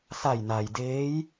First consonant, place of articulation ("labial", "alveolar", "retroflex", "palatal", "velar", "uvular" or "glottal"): alveolar